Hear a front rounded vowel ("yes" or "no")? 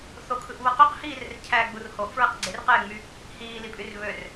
yes